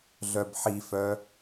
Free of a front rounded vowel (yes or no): no